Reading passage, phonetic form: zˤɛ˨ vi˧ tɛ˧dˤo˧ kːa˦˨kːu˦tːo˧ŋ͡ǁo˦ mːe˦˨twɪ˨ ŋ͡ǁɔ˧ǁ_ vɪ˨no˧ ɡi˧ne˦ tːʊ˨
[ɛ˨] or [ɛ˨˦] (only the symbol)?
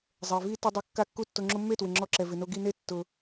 ɛ˨